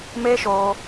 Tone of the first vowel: high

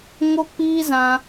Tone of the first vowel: high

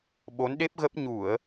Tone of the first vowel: rising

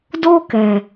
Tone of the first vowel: high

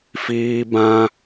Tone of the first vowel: high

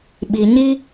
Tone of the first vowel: low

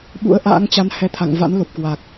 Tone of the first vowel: rising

